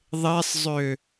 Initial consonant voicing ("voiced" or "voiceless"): voiced